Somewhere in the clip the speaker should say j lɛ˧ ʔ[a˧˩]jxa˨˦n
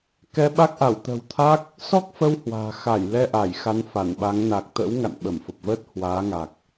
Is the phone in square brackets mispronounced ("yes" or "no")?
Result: no